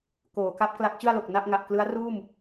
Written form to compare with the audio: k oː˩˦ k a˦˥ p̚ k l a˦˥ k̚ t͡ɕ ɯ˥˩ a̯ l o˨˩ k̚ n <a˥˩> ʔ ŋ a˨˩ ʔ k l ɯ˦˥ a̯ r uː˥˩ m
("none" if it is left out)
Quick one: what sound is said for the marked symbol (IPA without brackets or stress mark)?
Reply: a˥˩